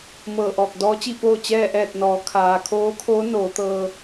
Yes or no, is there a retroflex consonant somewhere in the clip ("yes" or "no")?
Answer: no